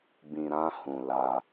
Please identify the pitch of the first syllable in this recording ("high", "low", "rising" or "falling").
low